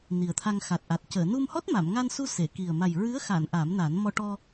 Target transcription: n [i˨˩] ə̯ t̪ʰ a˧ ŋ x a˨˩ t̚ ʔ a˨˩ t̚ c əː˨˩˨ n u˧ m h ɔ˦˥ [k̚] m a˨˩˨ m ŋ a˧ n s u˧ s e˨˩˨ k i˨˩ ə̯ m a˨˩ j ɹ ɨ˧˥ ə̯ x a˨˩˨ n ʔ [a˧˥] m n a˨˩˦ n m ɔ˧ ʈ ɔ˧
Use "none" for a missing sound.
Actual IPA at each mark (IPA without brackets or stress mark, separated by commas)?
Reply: i˨˩, t̚, a˨˩˦